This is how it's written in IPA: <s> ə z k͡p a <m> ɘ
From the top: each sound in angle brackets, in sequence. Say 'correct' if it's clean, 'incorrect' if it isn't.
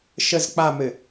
incorrect: ʃ, correct

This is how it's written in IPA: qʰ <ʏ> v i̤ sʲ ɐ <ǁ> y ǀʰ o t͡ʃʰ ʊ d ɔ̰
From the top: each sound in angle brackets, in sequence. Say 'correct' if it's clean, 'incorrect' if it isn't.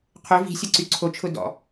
correct, incorrect: ǀ

